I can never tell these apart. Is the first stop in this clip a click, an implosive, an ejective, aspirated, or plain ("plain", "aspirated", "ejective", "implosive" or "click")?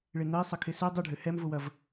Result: aspirated